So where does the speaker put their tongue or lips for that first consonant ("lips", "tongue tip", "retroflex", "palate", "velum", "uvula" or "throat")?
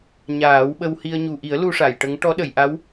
palate